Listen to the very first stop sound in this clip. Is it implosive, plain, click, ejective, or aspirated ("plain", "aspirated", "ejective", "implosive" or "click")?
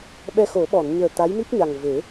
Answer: implosive